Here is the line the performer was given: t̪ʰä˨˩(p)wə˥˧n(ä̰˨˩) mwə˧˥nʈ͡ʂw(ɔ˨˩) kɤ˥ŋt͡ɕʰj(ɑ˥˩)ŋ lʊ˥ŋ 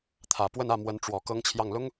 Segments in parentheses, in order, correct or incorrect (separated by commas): correct, incorrect, correct, correct